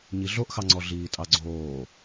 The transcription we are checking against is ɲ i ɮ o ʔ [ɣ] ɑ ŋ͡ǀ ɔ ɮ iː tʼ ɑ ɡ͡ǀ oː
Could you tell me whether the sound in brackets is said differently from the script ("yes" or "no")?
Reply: yes